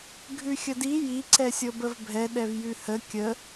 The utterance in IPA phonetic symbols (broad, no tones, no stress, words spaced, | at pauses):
ɡʱʉxʲədi ji ǀɛsʲɤbəvbʱɛ ɗɛvjʉhə kʲə